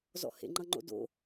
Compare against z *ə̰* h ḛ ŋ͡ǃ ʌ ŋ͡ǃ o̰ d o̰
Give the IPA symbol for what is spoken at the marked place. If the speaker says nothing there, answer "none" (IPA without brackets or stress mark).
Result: ɔ̰